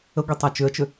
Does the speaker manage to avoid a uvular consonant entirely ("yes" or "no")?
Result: yes